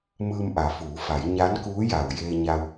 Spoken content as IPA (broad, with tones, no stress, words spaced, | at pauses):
mɯː˧mʔa˩˧fuː˩˧fa˩˧j ɲa˧˥nkuː˧˥ja˩w jeː˧ɲa˧w